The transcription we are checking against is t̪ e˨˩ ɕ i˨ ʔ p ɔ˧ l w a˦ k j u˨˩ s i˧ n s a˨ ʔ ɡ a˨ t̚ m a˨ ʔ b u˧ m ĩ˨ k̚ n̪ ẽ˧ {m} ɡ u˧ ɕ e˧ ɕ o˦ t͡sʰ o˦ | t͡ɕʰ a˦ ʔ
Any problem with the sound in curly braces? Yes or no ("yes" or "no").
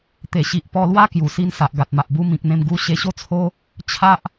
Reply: no